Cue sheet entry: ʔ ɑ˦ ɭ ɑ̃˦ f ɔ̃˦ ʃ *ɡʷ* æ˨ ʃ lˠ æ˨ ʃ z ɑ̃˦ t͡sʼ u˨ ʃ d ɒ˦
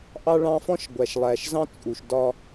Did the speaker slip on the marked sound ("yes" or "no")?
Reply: no